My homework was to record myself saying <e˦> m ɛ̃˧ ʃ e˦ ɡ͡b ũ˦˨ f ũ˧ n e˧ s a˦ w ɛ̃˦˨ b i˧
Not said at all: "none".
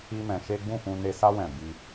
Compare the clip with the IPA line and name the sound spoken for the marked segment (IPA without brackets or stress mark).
i˦